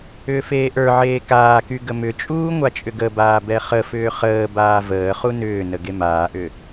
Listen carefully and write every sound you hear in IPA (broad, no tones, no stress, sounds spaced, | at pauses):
ʏː f eː ʔ ə˞ ʕ eː k aː k y ɡ ə m ʏ t͡ʃʼ uː ŋʷ a t͡ʃʼ ʏ ɡ ə b aː b ɛ χ ə f ʏː χ əː b aː v əː χ u n ʏː n ə ɡ e m aː ʔ ʏ